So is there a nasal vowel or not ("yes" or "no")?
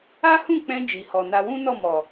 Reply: yes